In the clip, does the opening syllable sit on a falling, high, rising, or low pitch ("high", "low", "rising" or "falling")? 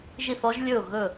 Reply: falling